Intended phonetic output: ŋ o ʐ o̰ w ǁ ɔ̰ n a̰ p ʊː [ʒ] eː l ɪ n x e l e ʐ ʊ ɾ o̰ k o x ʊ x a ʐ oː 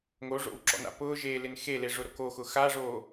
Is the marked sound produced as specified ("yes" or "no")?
yes